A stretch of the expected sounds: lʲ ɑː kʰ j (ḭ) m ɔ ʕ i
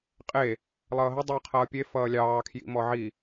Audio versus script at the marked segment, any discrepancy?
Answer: no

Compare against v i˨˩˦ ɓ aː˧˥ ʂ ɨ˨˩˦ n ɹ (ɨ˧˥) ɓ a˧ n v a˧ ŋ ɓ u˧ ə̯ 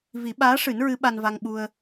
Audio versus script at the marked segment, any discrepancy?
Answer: no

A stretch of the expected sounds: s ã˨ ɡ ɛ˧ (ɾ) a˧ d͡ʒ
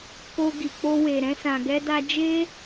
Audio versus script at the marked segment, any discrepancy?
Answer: yes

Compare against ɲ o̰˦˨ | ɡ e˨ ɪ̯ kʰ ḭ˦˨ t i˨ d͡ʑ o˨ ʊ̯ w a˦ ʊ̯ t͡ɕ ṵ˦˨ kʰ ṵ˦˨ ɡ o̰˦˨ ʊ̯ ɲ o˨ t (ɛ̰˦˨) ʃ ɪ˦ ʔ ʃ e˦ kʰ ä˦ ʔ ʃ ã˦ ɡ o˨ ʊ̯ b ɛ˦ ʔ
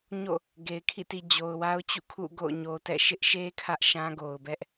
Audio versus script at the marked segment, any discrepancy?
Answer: no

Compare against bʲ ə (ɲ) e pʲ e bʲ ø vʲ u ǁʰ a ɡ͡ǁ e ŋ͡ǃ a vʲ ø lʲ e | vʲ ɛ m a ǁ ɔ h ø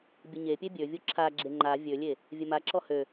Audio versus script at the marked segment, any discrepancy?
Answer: no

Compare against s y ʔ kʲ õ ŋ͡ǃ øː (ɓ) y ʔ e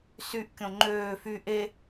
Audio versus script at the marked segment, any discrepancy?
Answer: yes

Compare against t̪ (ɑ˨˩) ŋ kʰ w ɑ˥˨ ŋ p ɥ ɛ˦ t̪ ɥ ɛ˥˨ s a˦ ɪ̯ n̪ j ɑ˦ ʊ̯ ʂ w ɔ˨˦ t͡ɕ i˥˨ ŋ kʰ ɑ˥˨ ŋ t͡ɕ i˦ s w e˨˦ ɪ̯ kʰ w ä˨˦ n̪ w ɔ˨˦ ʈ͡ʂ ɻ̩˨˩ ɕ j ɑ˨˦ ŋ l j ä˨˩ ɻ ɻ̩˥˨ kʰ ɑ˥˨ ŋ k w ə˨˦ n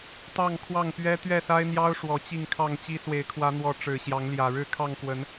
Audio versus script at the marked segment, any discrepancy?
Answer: yes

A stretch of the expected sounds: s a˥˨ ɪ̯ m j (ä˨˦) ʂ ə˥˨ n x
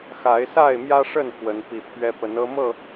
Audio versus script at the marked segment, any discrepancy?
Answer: yes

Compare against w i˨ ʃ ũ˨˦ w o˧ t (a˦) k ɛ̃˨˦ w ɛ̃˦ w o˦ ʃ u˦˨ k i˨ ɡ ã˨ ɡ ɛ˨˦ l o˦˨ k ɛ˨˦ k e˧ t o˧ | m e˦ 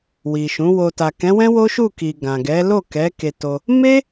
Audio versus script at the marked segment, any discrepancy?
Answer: yes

